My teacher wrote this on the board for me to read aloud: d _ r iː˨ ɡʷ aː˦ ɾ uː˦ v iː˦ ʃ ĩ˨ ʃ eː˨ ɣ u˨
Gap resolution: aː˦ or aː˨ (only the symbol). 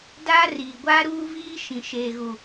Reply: aː˦